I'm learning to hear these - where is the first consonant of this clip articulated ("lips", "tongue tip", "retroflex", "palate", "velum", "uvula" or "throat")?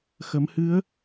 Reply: velum